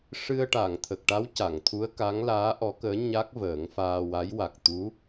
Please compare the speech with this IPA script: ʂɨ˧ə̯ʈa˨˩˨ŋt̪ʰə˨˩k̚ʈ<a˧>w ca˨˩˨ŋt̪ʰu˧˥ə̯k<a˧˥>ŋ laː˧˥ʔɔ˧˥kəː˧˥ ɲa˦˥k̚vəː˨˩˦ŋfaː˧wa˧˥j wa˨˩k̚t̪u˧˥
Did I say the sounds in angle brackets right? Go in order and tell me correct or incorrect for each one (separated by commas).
incorrect, correct